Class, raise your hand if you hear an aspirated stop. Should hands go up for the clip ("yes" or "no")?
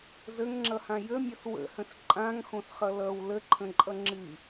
yes